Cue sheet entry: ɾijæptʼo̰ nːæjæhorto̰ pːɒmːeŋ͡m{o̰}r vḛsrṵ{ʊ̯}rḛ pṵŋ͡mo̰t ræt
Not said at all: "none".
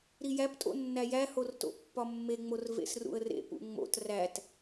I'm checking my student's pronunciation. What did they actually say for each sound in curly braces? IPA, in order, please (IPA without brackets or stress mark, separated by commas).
o, ə̯